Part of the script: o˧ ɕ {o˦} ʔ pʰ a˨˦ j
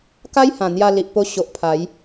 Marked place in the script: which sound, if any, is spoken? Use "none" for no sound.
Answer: o˨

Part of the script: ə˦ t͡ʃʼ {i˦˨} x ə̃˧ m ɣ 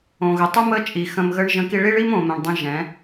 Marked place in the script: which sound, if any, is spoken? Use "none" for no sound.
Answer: i˨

